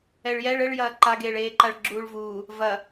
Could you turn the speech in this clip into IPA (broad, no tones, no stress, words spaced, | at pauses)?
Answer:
ɛɭjɛɭ ɘɭjɐː ǃaɡeːɭeːǃaɭ ɡ͡ǁuːɭvuː | vɐ